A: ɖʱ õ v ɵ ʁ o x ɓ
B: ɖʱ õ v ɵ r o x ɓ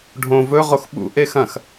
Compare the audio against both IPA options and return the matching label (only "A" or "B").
A